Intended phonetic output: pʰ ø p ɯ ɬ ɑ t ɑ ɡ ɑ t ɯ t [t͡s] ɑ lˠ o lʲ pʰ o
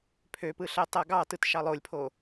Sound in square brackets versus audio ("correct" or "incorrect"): incorrect